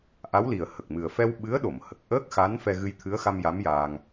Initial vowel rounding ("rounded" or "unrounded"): unrounded